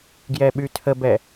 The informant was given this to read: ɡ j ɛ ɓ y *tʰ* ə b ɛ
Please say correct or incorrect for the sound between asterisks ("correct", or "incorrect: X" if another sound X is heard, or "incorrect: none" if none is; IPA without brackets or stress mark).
correct